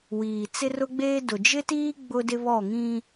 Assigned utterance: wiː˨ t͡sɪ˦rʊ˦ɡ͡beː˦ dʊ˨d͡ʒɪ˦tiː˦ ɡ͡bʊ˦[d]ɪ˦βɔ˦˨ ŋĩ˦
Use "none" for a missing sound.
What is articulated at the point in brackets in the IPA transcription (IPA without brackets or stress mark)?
d